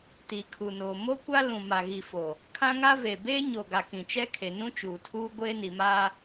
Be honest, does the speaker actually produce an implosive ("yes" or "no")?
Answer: no